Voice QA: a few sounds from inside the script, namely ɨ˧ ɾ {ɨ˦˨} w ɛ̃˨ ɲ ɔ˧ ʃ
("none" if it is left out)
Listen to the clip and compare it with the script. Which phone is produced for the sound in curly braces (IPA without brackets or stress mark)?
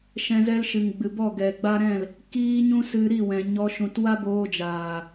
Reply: i˦˨